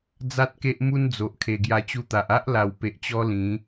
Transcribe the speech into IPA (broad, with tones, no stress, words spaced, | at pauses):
d͡za˦t̚ke˦ʔ mu˦nd͡zo˨ʔ kʰe˨˩ɡja˧t͡ɕu˧t̪a˨ʔ a˦ʔla˨˩wpe˨ʔt͡ɕɔ˧ lĩ˨˦